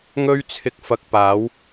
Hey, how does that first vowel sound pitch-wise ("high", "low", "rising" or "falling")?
high